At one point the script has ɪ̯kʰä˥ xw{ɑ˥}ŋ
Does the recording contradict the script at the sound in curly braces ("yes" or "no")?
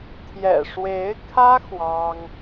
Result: no